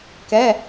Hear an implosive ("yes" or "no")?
no